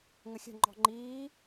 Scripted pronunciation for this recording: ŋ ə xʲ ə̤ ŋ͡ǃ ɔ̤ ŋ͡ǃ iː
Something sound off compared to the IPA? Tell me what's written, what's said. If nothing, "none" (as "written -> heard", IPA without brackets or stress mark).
none